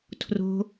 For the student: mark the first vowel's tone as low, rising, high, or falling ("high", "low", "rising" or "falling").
low